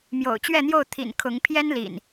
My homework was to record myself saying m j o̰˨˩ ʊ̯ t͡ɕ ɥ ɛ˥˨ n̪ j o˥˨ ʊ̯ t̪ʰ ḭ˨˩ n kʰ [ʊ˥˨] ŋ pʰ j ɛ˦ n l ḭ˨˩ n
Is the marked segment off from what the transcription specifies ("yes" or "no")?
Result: yes